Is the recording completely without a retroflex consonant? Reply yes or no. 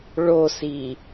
no